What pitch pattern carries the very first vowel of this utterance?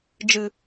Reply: low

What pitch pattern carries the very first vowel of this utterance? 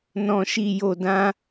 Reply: low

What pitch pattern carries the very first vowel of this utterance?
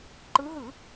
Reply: rising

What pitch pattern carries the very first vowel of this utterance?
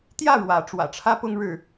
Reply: falling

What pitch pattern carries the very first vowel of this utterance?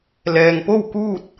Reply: low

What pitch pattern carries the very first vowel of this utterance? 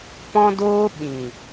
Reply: high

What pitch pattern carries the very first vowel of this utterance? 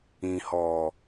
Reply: low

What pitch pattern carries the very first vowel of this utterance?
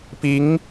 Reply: rising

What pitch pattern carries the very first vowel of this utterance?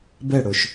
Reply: falling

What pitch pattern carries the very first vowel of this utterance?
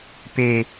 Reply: low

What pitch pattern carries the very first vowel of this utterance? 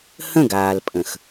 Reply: falling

